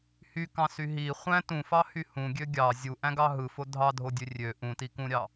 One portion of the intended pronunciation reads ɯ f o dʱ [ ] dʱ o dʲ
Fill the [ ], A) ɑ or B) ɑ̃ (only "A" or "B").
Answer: A